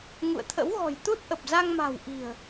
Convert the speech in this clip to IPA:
ŋ ṵ˧˨ ə̯ t̪ʰ ə̰˧˥ w ɣ ɔ̤˨˩ j t̪ u˦˥ t̚ ʔ ə˨˩ p̚ z a˧ ŋ m a̤˨˩ w ʔ i̤˨˩ ə̯

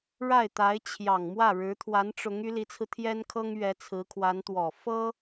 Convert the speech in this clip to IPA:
ɻ a˥˩ ɪ̯ t̪ a˧˥ ɪ̯ t͡ɕʰ j ɑ˨˩ ŋ m w ä˥˩ ɻ ɻ̩˧˥ t̪ʰ w a˧˥ n ʈ͡ʂ ʊ˧˥ ŋ y˧˥ l i˧˥ t͡sʰ ɹ̩˧ t̪ʰ j ɛ˥ n kʰ ɤ˥ ŋ ɥ ɛ˧˥ t͡sʰ ɹ̩˧˥ kʰ w a˧˥ n t̪ w ɔ˨˩ f ɤ˥

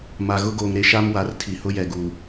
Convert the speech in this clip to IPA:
m a˨ ɣ ʊ˦ ɡ oː˨ ŋ ɾ e˦ ʃ a˦ m w a˨˦ r tʰ i˨ h ʊ˦ j ɛ˨ ɡ uː˨

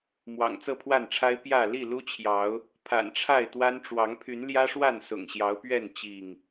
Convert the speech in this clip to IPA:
m w ɑ̰˨˩ ŋ t͡s ɤ˥˨ pʰ w a˥˨ n ʈ͡ʂʰ a˦ ɪ̯ p j ä˥˨ l i˥˨ l u˦ t͡ɕʰ j ɑ˨˦ ʊ̯ | pʰ a̰˨˩ n ʈ͡ʂʰ a˥˨ ɪ̯ t̪ w a˦ n ʈ͡ʂ w ɑ˨˦ ŋ pʰ y˨˦ n l j ä˦ ʂ w a˥˨ n s ʊ̰˨˩ ŋ ɕ j ɑ˨˦ ʊ̯ p ɥ ɛ˥˨ n t͡ɕ i˥˨ ŋ

